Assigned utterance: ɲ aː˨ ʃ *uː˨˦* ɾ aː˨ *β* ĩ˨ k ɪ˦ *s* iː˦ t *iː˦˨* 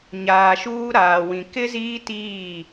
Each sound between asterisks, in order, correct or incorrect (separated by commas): incorrect, incorrect, incorrect, correct